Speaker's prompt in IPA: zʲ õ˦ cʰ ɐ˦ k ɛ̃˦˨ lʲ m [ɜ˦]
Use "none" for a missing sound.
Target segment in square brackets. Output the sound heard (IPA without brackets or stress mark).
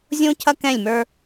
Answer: ə˞˦